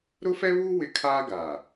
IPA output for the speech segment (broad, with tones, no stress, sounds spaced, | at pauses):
ɾ ʊ˦ f ɛ˦ β uː˦ w ɪ˦ kʰ aː˦ ɡ aː˨